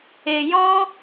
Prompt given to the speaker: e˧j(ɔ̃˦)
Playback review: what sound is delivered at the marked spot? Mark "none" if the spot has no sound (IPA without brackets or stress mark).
ɔ̃˦